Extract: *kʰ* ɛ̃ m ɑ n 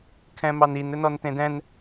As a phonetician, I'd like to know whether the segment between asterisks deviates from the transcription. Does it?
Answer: no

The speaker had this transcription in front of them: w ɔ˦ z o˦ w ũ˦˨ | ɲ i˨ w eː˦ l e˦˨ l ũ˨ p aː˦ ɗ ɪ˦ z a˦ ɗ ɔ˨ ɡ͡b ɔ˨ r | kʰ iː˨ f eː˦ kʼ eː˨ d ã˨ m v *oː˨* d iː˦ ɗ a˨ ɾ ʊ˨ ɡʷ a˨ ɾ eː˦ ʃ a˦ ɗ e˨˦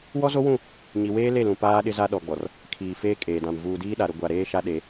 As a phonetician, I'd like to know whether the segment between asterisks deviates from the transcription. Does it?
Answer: yes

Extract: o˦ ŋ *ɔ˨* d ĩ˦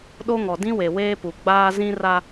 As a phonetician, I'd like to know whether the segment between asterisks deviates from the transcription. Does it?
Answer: no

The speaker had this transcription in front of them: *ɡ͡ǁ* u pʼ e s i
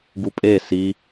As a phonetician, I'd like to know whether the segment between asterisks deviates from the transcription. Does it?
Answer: yes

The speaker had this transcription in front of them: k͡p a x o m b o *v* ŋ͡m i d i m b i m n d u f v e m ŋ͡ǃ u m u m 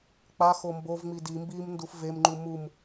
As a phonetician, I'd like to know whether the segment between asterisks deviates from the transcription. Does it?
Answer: no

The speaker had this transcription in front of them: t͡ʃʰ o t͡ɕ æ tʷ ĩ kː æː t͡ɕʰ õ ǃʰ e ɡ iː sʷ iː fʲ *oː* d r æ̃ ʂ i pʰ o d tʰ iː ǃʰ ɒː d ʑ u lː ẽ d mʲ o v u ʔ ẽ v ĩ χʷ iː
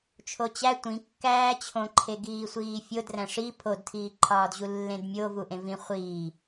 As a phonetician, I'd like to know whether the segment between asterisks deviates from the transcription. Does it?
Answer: yes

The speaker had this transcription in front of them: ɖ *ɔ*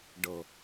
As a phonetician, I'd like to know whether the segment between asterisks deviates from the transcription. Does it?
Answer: yes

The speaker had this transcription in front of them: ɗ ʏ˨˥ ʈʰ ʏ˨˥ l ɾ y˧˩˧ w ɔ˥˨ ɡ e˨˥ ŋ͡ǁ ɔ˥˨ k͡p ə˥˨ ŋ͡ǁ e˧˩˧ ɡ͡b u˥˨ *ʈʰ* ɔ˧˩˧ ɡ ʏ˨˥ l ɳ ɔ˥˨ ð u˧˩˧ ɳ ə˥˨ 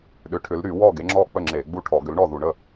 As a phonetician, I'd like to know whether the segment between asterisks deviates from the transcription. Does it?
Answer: no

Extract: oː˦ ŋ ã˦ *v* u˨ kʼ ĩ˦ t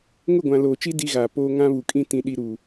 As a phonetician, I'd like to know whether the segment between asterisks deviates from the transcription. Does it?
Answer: yes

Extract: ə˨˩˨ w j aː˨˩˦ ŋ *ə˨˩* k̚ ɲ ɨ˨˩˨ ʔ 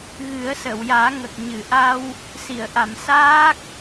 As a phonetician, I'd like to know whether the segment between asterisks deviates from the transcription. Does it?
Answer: no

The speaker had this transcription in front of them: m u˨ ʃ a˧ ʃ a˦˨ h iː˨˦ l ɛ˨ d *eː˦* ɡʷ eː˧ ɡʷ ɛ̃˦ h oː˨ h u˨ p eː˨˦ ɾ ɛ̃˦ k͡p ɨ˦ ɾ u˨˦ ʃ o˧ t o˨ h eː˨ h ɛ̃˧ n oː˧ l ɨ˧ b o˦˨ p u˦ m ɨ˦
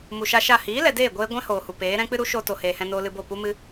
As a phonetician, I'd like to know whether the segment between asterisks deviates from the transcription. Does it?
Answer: yes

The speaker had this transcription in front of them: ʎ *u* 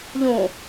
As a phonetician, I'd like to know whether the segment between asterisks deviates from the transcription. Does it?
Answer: yes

